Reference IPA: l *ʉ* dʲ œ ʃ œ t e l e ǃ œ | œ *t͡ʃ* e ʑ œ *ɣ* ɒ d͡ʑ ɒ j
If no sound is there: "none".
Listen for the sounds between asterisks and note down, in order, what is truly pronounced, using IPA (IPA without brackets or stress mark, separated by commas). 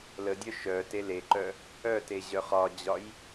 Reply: ə, t, χ